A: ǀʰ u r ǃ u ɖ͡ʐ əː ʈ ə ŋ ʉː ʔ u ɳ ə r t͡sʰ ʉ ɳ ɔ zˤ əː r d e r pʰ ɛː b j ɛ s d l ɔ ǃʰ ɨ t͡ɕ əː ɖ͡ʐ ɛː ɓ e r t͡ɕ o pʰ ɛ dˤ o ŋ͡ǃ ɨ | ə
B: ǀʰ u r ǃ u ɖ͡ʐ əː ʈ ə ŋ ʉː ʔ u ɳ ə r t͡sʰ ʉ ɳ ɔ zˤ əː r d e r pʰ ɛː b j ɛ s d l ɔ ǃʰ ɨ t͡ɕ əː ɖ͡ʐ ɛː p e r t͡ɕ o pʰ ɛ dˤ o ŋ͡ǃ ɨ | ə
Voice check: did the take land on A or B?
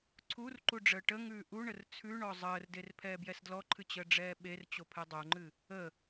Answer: A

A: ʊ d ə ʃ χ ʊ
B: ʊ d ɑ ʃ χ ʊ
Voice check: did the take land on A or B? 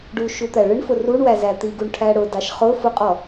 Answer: B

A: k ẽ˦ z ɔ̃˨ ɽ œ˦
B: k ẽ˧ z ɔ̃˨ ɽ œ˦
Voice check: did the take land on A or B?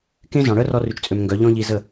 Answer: A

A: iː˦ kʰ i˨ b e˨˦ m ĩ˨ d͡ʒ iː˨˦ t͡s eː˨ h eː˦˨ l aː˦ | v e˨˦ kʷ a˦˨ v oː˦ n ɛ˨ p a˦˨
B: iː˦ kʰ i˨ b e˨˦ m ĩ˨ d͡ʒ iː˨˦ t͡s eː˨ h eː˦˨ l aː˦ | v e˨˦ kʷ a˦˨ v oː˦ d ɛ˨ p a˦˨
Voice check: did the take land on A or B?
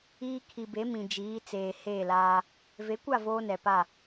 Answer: A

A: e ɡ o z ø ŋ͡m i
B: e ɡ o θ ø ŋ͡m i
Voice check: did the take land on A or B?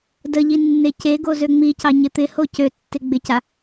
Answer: A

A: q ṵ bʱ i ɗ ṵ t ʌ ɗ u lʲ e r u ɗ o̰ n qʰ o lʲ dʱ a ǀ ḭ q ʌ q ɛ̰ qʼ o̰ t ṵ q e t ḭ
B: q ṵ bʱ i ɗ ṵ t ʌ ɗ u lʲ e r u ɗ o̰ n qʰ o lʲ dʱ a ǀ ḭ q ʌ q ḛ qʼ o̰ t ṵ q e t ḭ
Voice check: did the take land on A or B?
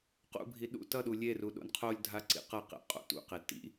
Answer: B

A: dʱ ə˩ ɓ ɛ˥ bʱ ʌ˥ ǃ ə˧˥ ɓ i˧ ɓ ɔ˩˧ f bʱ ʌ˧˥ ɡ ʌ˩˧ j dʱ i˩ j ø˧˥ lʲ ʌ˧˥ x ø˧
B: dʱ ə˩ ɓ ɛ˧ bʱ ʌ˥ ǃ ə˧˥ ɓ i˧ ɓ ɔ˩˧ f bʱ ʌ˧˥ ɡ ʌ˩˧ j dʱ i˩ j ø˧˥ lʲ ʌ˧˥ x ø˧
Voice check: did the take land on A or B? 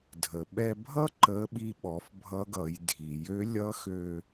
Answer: B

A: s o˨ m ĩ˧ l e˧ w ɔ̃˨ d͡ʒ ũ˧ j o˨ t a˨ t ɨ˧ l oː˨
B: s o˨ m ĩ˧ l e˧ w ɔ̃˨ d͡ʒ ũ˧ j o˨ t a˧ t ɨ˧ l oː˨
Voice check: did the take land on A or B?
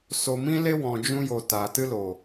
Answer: A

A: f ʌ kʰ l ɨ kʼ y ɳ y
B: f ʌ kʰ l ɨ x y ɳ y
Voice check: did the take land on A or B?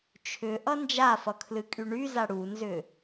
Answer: A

